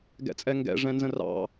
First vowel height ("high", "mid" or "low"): mid